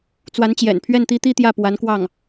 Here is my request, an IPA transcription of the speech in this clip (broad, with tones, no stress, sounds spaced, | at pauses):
t͡s w a˧˥ n t͡ɕ j ɛ̰˨˩ n pʰ ɥ ɛ˥˩ n t̪ i˥ t̪ i˥˧ t̪ j ä˥˩ p w a˧˥ n k w ɑ˥˩ ŋ